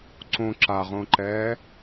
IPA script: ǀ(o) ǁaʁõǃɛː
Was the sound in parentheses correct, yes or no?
no